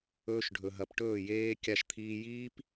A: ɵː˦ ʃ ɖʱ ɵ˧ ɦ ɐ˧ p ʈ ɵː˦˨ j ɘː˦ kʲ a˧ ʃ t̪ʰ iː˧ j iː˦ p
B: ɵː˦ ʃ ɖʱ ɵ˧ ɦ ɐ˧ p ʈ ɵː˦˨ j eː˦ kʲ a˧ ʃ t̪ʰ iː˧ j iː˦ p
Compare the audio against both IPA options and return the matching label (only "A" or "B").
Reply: B